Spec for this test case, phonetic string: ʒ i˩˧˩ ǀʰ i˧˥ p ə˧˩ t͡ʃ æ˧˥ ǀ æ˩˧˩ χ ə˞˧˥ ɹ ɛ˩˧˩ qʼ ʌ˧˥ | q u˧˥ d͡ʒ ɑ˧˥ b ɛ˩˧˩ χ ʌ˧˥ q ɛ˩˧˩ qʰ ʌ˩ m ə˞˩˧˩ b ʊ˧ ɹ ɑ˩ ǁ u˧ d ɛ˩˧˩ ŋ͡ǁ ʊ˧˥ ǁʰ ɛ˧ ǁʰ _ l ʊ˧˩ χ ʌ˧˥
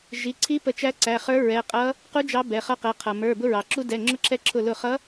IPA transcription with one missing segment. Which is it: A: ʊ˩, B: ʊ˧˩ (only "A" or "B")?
B